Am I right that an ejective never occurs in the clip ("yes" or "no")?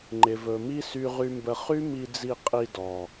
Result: no